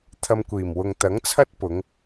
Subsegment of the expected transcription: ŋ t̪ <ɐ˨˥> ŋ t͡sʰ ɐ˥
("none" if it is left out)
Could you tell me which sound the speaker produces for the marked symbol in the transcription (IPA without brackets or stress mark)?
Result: ɐ˨˥